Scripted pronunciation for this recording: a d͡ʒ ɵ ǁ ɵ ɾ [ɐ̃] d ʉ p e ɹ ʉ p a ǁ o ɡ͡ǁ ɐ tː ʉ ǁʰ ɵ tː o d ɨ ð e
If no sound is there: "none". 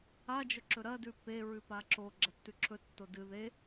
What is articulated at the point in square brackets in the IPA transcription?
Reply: ɐ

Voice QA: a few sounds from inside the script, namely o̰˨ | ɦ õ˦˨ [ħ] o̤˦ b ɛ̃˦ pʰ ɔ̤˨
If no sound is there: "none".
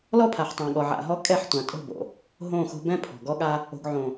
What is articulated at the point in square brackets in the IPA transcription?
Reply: x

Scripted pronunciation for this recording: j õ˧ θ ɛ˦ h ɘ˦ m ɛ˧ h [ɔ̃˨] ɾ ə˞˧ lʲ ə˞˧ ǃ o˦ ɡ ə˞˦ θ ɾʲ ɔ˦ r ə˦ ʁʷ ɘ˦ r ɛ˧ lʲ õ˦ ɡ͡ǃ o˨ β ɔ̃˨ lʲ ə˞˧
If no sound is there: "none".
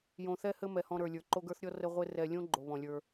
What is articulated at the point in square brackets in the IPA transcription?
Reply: ɔ̃˦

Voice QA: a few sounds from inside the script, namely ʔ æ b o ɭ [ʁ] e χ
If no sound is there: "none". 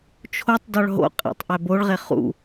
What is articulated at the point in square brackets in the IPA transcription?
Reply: ʁ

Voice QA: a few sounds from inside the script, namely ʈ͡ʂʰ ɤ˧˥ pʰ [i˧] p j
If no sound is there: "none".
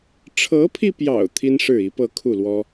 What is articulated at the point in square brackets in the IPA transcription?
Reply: i˧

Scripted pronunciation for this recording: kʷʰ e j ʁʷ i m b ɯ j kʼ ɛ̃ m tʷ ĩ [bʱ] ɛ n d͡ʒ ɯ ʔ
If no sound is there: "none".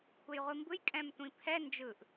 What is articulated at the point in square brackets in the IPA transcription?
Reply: pʰ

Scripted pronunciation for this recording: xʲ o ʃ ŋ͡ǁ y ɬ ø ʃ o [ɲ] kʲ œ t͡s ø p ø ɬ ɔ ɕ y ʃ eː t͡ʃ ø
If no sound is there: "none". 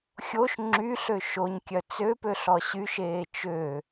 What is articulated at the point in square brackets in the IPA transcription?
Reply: ɲ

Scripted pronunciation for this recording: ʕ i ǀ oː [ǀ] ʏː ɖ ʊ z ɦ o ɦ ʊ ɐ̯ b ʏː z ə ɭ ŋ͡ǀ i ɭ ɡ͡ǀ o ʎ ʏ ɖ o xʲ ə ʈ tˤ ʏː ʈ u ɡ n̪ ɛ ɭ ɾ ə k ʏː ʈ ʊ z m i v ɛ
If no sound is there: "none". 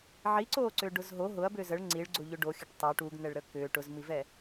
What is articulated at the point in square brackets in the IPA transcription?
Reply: ǀ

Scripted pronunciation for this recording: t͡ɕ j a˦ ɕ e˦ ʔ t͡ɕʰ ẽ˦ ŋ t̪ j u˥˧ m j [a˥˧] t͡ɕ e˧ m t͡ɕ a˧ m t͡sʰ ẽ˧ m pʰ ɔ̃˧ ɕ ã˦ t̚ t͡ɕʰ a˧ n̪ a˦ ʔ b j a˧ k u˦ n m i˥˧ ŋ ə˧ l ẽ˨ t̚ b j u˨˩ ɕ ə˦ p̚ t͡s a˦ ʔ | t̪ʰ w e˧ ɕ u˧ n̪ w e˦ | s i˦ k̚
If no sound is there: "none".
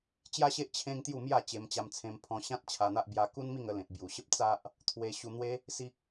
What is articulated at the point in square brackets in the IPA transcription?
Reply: a˥˧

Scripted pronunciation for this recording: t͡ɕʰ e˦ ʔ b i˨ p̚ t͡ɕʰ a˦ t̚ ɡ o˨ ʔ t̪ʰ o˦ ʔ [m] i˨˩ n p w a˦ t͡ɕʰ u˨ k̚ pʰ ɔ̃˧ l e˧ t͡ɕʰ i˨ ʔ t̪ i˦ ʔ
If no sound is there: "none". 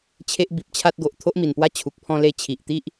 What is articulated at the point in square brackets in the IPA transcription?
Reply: m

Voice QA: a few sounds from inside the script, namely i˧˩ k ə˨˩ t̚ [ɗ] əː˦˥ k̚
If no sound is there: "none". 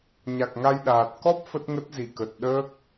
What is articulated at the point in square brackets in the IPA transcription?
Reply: ɗ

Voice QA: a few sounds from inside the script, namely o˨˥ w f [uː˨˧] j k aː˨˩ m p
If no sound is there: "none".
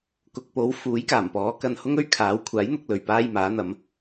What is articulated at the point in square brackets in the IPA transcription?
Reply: uː˨˥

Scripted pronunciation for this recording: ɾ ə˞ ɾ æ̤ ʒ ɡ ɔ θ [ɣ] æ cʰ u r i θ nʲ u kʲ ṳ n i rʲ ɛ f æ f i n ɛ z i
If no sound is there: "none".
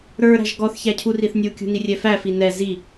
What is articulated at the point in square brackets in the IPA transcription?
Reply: ç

